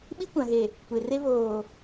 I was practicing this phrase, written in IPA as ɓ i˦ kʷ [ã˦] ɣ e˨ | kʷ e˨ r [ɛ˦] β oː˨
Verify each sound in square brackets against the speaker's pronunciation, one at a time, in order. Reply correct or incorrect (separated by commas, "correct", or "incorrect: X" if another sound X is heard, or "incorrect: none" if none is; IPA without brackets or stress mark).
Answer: incorrect: ã˨, incorrect: e˦